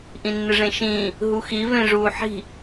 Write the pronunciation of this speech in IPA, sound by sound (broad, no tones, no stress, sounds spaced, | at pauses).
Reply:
ʔ ĩ nː ɨ ʐ ẽ ʃ ĩː | ɦ u x i v ẽ ʐ uː ħ i̤